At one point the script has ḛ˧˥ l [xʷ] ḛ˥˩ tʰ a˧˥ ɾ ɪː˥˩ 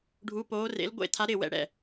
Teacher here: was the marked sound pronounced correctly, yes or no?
no